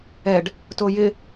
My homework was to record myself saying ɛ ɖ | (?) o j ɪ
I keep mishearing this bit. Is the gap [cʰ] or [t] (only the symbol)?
t